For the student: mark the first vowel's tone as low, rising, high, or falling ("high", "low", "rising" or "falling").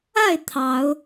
falling